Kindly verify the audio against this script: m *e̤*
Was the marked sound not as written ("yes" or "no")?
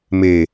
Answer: yes